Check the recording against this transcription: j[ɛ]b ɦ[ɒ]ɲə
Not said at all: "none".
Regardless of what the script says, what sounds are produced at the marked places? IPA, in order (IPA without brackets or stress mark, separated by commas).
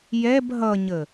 ɛ, ʌ